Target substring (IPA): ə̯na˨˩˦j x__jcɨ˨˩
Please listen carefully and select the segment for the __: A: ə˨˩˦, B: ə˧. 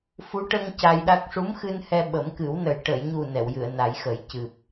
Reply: A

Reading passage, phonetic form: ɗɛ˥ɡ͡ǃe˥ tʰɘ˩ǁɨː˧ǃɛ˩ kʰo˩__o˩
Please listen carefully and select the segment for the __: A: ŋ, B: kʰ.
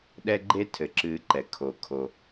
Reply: B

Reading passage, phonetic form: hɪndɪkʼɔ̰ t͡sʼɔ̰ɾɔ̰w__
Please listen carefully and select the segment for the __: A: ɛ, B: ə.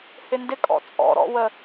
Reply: B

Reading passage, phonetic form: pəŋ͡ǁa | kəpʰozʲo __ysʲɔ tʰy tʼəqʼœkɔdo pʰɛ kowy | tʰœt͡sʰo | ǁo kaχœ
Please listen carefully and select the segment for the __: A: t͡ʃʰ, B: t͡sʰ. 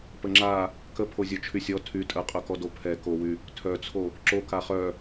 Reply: A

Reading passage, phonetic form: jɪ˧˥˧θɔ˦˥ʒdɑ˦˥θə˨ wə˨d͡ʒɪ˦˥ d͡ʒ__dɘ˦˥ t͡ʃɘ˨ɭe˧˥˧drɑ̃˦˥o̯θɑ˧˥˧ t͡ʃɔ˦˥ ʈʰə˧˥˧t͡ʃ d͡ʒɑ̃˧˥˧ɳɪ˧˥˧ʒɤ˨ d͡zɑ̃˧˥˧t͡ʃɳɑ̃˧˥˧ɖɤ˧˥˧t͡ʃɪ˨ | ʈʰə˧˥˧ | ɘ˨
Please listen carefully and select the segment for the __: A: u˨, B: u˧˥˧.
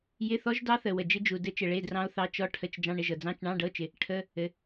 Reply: A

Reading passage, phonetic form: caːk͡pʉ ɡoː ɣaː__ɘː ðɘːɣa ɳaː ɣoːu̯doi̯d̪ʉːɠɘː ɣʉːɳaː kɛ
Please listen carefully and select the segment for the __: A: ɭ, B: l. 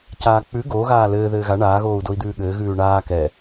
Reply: B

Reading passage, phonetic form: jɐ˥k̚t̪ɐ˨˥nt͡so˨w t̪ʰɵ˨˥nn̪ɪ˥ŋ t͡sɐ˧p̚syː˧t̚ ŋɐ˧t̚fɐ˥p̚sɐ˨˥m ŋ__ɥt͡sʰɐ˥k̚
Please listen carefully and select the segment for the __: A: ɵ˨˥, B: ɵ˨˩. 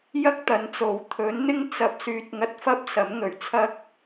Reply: B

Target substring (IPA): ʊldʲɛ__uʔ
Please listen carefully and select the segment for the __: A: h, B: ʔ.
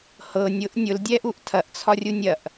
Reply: B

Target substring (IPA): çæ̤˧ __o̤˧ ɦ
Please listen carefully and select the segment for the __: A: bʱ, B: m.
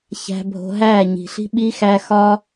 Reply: A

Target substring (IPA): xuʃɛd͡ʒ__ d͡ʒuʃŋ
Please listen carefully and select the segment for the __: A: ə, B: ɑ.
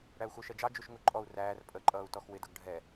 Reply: B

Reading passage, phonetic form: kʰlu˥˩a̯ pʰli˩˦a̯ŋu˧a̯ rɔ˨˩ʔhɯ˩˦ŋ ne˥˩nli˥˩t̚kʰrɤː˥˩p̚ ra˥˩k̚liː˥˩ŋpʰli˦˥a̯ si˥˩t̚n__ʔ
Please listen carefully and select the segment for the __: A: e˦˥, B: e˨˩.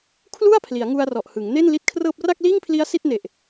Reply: B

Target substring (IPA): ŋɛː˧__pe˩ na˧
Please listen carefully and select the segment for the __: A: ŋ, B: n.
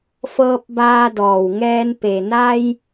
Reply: B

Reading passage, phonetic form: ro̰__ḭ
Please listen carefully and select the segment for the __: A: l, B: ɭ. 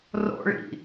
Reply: B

